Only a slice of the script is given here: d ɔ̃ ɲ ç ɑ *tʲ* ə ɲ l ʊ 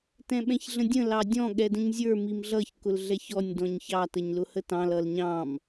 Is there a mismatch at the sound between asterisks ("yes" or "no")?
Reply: yes